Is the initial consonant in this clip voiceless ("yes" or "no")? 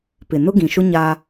yes